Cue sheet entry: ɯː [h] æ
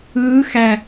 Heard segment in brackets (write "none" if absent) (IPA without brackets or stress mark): x